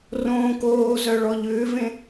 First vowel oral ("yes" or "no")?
no